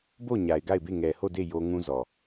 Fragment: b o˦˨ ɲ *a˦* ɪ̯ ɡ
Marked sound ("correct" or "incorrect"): incorrect